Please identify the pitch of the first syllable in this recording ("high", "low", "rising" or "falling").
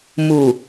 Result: low